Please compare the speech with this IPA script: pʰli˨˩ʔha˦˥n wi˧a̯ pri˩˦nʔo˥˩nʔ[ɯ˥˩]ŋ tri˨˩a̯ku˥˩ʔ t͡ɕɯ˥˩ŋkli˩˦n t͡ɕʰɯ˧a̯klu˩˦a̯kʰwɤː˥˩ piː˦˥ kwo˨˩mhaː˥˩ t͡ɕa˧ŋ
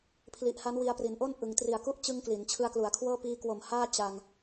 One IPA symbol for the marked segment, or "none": ɯ˩˦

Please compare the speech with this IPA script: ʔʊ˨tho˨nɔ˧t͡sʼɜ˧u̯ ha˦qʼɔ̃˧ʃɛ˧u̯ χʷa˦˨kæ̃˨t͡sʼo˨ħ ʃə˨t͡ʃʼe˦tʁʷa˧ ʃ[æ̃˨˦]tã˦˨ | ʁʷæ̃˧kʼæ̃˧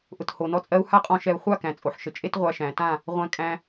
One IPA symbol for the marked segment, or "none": æ̃˨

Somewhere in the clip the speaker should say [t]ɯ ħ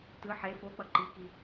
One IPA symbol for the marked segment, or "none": t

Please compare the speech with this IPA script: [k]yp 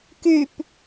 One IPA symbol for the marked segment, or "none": k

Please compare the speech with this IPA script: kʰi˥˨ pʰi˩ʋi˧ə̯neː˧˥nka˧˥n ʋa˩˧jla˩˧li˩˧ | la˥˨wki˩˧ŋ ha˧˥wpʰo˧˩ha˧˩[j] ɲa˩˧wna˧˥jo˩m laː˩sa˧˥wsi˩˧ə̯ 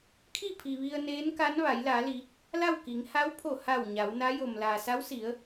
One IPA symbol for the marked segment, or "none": w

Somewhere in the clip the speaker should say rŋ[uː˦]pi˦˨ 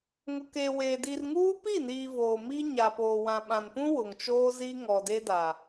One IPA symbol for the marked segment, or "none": uː˦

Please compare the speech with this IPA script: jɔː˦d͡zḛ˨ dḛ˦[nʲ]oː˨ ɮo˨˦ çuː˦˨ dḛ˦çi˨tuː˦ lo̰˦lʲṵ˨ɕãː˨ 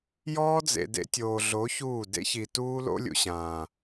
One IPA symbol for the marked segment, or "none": tʲ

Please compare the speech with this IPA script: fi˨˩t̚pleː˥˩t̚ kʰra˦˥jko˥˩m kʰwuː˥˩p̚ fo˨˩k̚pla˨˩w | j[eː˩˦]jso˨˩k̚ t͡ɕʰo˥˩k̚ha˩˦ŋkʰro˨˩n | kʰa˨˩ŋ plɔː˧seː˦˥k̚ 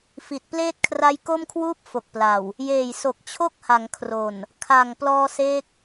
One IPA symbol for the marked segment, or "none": eː˨˩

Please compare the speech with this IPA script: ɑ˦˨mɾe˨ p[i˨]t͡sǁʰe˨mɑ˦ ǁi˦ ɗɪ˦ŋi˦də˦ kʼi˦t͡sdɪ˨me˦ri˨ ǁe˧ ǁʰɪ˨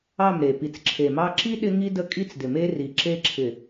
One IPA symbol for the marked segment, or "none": i˨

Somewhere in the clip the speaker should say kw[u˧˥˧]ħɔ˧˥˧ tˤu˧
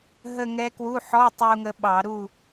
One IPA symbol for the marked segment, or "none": u˧˥˧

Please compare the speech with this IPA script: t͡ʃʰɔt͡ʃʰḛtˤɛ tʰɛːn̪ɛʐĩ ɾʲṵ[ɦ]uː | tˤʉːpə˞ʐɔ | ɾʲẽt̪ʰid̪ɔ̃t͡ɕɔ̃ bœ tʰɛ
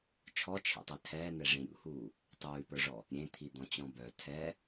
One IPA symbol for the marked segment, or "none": h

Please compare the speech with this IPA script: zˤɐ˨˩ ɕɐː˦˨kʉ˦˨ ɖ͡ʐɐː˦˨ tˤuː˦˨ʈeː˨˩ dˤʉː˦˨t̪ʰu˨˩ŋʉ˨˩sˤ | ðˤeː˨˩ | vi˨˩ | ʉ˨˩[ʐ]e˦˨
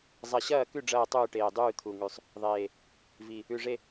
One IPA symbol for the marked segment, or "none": ʐ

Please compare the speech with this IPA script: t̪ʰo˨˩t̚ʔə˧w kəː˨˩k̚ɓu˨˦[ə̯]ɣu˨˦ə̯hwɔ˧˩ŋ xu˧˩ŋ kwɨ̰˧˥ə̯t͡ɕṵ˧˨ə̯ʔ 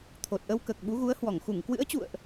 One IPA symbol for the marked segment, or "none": none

